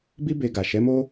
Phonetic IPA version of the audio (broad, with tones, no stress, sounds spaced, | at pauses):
b i˦ b e˧ ɡ a˨ ʃ ɛ˨˦ m o˦